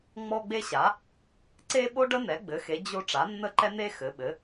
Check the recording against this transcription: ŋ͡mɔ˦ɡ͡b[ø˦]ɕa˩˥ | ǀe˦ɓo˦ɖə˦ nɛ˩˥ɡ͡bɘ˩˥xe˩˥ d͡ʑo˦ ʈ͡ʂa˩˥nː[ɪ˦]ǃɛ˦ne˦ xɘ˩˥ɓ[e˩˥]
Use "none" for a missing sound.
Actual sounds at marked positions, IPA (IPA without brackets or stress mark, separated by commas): e˦, ə˦, ɘ˩˥